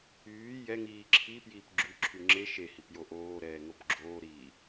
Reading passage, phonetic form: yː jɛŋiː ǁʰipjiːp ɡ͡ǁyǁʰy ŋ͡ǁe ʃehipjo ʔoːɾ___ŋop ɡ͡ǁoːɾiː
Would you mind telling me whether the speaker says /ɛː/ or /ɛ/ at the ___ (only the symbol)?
ɛː